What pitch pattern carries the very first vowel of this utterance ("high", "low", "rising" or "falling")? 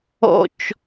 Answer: low